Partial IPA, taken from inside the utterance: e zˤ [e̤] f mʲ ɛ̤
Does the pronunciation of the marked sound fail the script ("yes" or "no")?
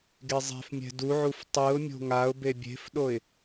no